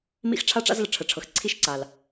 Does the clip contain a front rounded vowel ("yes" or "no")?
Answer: no